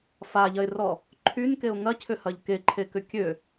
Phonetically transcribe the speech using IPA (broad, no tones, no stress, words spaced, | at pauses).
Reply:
faʎɐɪ̯rɔ | ǃʰynkeʊ̯ ŋɐcʰʏhɐʎ keǃʰekʏ kʲø